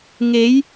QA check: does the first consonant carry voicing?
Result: yes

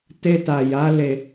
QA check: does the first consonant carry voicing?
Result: no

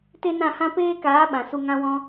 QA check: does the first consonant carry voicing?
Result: no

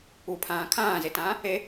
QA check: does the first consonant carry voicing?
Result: no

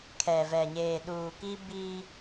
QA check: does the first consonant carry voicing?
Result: no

